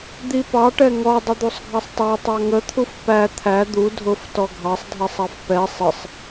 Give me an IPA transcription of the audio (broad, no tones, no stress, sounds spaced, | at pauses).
d̪ i p ɑ ʈ ɛ ŋ ɔ dˤ ə d̪ u sˤ ɡʱ ɑ sˤ tˤ ɑ tˤ ɑ ŋ ə t̪ʰ u f p æ t̪ʰ æ d̪ u dʱ ʊ f t ɔ ɡʱ ɑ sˤ dʱ ɛ sˤ ɑ f p ɛ sˤ ɪ sˤ